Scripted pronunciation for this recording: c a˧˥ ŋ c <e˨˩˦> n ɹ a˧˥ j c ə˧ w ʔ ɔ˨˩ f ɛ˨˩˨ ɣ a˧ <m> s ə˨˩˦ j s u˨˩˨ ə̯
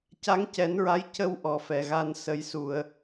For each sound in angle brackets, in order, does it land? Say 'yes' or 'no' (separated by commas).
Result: no, no